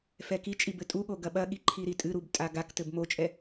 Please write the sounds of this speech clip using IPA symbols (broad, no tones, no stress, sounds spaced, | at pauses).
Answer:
f ɛ k i t͡ʃʼ i b ɘ tʼ u ɠ o ɡ ɐ ɓ ɐ ɠ i ǃʰ i ɾ i tʼ ɨ ɾ u b tʼ a ɡ a k t ɘ b m o t͡ʃʼ ɛ